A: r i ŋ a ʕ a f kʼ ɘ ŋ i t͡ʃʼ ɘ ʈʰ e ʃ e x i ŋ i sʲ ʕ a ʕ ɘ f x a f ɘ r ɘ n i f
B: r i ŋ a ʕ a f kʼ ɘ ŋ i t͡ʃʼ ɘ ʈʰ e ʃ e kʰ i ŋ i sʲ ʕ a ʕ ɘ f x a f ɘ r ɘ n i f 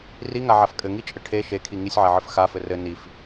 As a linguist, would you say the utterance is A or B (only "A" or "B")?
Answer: B